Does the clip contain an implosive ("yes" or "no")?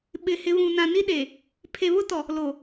yes